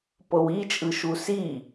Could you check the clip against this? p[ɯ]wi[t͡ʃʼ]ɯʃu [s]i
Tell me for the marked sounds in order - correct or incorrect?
incorrect: ɤ, correct, correct

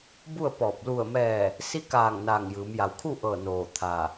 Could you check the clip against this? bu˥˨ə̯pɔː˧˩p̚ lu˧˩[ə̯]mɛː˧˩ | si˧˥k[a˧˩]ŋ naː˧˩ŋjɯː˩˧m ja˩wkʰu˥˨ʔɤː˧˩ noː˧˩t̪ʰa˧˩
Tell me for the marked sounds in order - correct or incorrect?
correct, incorrect: aː˧˩

